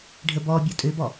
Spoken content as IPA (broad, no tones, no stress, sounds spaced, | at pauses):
ɖʱ ə b ɔ bʲ ɔ tʼ ø b ɔ